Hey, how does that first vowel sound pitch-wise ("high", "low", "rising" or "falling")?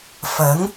rising